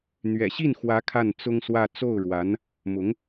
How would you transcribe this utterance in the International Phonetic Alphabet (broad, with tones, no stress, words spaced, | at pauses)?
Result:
n̪ɥɛ̰˨˩ɕi˥˩nxwä˧˥ kʰa˥˩nt͡sʊ˥ŋswä˥˧ t͡so˥˩ʊ̯ɻwa˧˥n | mʊ˧˥ŋ